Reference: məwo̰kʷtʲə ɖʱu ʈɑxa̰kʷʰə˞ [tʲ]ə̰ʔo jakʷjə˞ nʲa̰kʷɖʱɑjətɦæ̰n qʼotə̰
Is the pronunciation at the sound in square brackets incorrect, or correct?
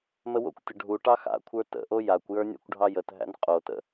incorrect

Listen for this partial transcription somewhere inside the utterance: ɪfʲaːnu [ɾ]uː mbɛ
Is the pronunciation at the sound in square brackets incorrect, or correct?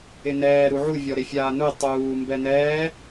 incorrect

